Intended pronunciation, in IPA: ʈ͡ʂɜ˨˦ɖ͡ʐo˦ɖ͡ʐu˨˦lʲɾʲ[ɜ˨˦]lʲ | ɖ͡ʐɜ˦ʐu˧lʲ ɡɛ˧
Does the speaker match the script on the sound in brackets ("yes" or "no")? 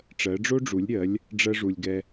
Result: yes